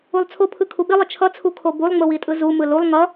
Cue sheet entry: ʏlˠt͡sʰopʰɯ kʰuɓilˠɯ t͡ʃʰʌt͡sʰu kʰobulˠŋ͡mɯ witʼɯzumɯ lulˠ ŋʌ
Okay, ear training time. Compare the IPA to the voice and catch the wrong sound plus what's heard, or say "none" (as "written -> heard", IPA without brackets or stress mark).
ʏ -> u